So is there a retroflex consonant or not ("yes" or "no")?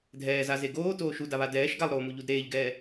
no